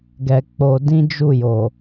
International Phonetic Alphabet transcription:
ɡɛ˧k͡po˧ dĩ˦d͡ʒu˦˨jo˨

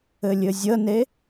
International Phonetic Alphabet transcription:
ɘlʲɘzʲəne

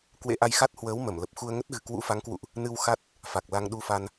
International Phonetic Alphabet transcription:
kwḛ˧˥ʔa˧jxa˦˥t̚hwəː˨˦w mə˧˩mlə˨˩p̚xu˧ə̯ŋə˦˥t̚ ɣɨ̤˨˩kwṵ˧˥fa˨˦ŋkwṵ˧˨ʔ | nɨ˧wxa˦˥t̚ | fa˨˩k̚la˧ŋɗu˧fa˧n

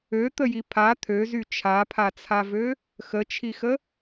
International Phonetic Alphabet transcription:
øt̪əji pʰa t̪ʰøzy t͡ʃʰapʰat͡sʰavø | xət͡ʃʰixə

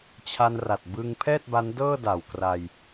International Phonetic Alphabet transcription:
t͡ɕʰa˧nra˨˩t̚bɯ˧ŋ pʰɛː˥˩t̚ba˦˥n dɤː˥˩da˨˩wkra˧j

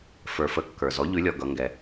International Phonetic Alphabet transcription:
fə˞˩fə˩˥ kːə˞˩zɔ˩˥ ʎʉ˩˥lʲɔ˩ ɡʌ˩˧ŋɡɛ˩

